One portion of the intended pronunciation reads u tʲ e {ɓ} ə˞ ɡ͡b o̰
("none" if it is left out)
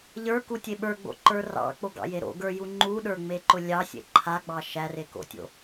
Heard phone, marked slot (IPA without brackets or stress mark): ɓ